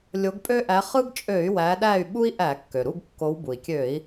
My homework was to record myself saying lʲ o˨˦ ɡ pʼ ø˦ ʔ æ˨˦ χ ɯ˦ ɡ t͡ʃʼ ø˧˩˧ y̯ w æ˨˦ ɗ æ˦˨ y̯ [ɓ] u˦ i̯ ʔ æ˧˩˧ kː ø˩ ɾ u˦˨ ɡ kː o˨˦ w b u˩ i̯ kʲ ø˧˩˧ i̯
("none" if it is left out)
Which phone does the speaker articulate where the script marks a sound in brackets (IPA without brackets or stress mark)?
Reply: ɓ